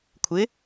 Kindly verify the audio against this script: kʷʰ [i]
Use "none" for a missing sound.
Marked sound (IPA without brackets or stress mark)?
ɪ